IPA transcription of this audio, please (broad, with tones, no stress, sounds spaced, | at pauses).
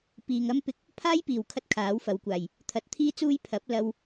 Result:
p iː˨ ŋ ɐ˥ m p ɪ˧ k̚ | pʰ aː˥ j p iː˨˩ w kʰ ɐ˧ t̚ kʰ aː˨˥ w f ɐ˨˧ w kʷ aː˨˩ j | t̪ʰ ɐ˨˥ t̚ t̪ʰ iː˥ t͡s uː˥ j pʰ ɐ˨˥ p̚ l ɐ˧ w